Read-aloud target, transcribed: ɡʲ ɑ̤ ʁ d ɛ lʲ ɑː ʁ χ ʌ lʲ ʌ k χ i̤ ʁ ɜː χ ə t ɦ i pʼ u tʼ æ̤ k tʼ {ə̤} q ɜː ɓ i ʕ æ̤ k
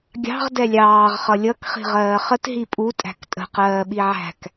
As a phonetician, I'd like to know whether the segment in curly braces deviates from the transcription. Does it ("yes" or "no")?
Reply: no